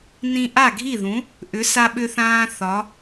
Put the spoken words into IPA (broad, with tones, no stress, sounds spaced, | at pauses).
n ĩ˧ ʔ a˥˩ ɡʱ i˥˩ ð ũ˩˥ | ʔ ʏ˩˥ s a˧ ɓ ʏ˧ θ ãː˧ θ ɒ˩˥